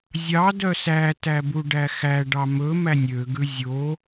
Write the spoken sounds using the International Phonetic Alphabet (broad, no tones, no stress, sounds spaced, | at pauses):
zʲ ɑ d œ s æ t æ b u ɖ æ x æ ɖ ɑ m ɵ m æ nʲ ø ɡ ʉ zʲ o